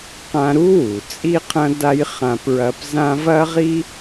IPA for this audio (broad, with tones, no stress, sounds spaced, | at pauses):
q ã˧ ɾ u˥ w u˩ t͡sʼ i˥ qʰ ɐ̃˥ d a˥ j χ ã˧ p ɹ ɐ˧ p z ã˥ v ɐ˥ ʁ i˥